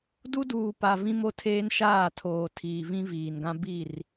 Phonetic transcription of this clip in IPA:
d u˦ d uː˨ p a˨ v ĩ˦ m o˦ tʰ eː˦ n ʃ aː˦˨ tʰ oː˨ tʰ iː˨ v ĩ˦ v iː˨ n ɡ ã˦ b i˦˨ r

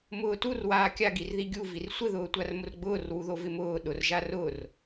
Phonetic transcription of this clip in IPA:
m ʊː t u r w aː kʲ a ɡ i r ð i ɡʲ u v i r sʷ ɪ ð ʊː tʷ a r m ʊ r ɡ͡b ʊː r w u ð o v ɪ m ʊː ɗ ʊ r ʒ a r ʊ r

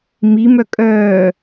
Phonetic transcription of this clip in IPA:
m i m œ kʼ œː

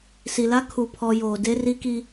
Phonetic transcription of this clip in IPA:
s i˨ l a˦ kʰ u˨ pʰ ɔ˨ j oː˨ d e˦ r i˦ k i˦

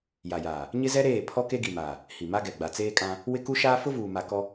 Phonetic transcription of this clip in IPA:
j a˨ j aː˨ | ɲ ɪ˦ z ɛ˦ ɾ eː˦˨ pʰ ɔ˦ k e˦ ɡ i˨ m aː˨ | h i˨ m a˦ ɡ ɛ˨ ɡ͡b a˨ t͡s eː˦ kʼ ã˦ | w ɪ˦ k u˦ ʃ aː˦ f ʊ˦ v uː˨ m a˨ k ɔ˦

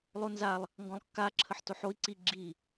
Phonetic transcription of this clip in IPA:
lˠ o n z a lˠ | ŋ ɡ ɔ̃ lˠ kː a ǁʰ ə ħ t o ħ o i̯ ǀ i ɡ͡ǁ i

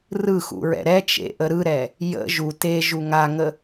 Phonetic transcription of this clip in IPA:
r ɯ x ṵ ɹ ɛ̰ ɾ ɛ t͡ʃ ḛ ʔ ə ɾ ɯ ɾ ɛ | j ə̰ ʒ u t e ʒ u ŋ a ŋ ə

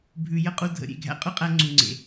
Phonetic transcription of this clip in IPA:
bʱ ʉ˨ j ə˦ qʼ u˧ dʱ ə̰˨ ɾʲ ḛ˦˨ ɡʱ æ̰˧ qʼ ʉ˦ qʼ æ˧ ŋ͡ǀ u˨ ŋ͡ǀ ḛ˨

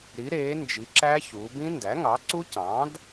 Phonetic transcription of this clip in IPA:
ɾ i˩˧ ɾ eː˩˧ n d͡ʒ i˩˧ ǁ æ˦˥ ç uː˩˧ b ĩ˦˥ n d æ˩˥ ŋ ɑ˩˥ ǀ u˦˥ c ɑ̃˩˥ d

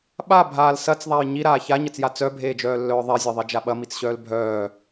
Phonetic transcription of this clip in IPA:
ɓ a bʱ aː l s ɐ t͡s ðˤ a j ɲ i ɾ aː ç a ɲ ɐ t͡s j a t͡s œ bʱ eː d͡ʒ œː lː œː ðˤ e zʲ e ðˤ e d͡ʒ a ɓ ɐ m i t͡s ɕ œː l bʱ œː

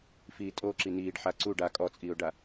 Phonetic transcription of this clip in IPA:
f iː tʼ o ǁ i n iː ɖ ħ a ǀ u ɖ a kʼ ɔ t͡sʼ iː ʊ̯ ɖ a

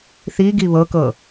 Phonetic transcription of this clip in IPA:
θ i ɡ i β ɤ k ɤ

